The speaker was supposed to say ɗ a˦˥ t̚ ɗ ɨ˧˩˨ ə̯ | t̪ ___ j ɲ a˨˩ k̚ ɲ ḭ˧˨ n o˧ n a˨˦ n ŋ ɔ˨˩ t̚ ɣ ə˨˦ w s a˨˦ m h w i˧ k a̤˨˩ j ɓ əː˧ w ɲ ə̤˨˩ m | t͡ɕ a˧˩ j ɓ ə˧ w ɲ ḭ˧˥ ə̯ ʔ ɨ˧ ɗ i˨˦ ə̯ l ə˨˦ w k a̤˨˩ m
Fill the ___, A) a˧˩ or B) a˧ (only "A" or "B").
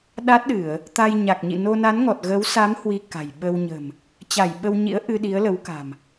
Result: B